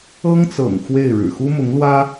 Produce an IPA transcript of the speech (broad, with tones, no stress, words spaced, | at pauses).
ɤ˥ŋt͡sɤ̰˨˩ŋ xwe˥˩ɪ̯ɻɻ̩˨˩ xu˥mʊ˧˥ŋlwä˥